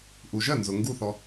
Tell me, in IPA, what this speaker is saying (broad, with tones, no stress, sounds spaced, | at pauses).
ʔ u˩ ʒ ɜ˥˩ n z ʊ˩ ŋ ɡ u˥˩ θ ɔ˩